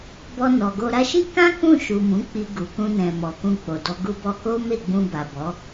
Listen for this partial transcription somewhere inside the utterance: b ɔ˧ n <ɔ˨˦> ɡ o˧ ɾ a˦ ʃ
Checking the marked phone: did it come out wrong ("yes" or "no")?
yes